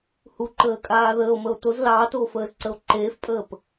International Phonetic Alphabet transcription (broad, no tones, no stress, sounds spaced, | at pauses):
h u ǃ əː kʼ aː ð əː o̯ m ə o̯ t o z l ɑː t oː f əː z ǀ ə o̯ ǃ eː f pʼ əː p